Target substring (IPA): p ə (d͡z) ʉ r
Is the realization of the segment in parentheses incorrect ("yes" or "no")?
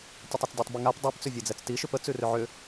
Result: yes